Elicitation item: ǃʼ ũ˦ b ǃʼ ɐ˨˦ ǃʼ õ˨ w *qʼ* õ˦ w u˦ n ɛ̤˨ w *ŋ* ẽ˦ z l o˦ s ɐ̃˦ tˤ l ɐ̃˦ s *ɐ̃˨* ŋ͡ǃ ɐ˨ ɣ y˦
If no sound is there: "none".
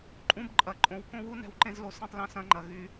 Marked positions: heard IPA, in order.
k, ǃ, ɐ̃˦

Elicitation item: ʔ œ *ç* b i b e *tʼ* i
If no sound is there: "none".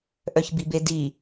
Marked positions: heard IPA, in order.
ç, d

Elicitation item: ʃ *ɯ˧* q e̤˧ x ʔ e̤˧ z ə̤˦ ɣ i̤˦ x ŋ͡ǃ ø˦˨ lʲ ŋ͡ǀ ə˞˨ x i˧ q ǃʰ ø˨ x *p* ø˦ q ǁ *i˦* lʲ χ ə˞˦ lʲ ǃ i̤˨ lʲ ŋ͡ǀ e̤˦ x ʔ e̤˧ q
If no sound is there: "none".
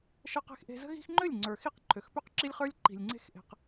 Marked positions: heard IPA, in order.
ə˧, p, i˦

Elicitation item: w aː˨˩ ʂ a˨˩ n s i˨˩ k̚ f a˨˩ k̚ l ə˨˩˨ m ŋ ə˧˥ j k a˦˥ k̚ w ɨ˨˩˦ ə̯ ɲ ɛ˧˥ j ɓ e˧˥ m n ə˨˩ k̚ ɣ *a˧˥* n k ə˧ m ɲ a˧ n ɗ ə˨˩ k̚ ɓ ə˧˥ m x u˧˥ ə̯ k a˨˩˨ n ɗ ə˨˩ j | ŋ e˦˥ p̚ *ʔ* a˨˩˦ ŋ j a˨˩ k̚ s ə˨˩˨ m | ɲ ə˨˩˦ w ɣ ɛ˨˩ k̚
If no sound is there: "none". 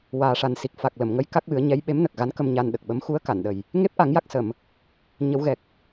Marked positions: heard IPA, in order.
a˧˥, ʔ

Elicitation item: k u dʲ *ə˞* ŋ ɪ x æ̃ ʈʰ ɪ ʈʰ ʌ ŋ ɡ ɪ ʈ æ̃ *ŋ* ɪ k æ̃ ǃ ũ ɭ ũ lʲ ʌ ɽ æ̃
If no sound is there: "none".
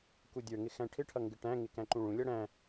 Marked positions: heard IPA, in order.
ə˞, ŋ

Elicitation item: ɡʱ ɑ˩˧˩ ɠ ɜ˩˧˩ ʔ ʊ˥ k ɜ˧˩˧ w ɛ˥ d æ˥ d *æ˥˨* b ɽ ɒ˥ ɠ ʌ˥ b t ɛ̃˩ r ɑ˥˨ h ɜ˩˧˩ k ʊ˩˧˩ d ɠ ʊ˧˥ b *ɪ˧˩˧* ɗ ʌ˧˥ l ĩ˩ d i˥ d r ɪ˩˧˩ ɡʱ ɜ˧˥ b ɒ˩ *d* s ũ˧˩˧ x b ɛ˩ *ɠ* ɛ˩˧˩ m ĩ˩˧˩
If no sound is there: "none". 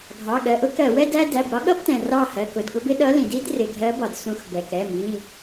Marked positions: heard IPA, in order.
æ˩˧˩, ɪ˥, d, k

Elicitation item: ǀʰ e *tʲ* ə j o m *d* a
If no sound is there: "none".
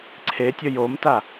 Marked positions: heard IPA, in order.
tʲ, t

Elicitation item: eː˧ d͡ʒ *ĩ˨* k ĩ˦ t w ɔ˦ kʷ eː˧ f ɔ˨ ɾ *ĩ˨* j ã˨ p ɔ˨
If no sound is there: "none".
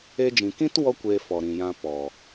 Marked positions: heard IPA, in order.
ĩ˨, ĩ˨

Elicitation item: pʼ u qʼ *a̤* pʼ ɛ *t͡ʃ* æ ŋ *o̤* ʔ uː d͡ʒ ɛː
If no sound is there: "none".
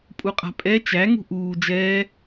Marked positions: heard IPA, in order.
a̤, t͡ʃ, ṳ

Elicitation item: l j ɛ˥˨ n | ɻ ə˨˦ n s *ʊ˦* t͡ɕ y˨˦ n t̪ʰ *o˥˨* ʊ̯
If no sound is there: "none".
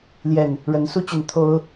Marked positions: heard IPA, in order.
u˦, o˦

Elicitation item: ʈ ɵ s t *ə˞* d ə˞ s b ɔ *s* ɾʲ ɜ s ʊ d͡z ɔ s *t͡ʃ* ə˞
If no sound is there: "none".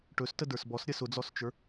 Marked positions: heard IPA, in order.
ə, s, t͡ʃ

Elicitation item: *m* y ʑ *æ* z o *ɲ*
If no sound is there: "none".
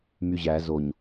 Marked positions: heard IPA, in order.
m, æ, ɲ

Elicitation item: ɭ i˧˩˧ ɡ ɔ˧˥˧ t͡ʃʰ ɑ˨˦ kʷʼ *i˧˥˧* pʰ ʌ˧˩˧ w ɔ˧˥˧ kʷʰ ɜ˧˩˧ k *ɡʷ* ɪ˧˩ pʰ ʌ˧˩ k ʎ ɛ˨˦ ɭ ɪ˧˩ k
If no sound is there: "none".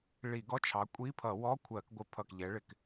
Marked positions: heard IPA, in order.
i˧˥˧, ɡʷ

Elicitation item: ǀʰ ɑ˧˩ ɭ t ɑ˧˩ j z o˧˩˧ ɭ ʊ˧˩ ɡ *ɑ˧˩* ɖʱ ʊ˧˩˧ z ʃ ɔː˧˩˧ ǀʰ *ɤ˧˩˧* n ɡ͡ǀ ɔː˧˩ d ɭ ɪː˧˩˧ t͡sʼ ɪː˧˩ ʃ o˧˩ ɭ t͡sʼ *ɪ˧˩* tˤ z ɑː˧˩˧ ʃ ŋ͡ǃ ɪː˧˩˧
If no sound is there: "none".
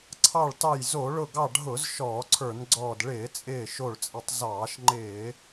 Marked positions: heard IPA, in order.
ɑ˧˩, ə˞˧˩˧, ɪ˧˩

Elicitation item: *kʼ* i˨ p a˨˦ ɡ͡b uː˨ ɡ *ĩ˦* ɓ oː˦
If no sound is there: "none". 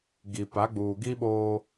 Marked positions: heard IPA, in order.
ɡ, i˦

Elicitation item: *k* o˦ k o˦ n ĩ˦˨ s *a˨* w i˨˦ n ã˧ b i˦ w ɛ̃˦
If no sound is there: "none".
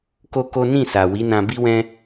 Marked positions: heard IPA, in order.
k, a˨

